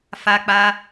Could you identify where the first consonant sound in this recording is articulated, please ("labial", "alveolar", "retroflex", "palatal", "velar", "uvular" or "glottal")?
labial